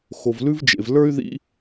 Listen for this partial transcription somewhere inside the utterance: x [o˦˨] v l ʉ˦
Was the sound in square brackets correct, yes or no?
no